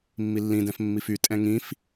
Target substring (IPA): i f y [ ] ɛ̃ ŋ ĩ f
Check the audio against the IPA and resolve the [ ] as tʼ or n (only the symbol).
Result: tʼ